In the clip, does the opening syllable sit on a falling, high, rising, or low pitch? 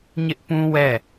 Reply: high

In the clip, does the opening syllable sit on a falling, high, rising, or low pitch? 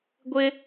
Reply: high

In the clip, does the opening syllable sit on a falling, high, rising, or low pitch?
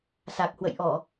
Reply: low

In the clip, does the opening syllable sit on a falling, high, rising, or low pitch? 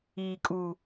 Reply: low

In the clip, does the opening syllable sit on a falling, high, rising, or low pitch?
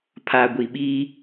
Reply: low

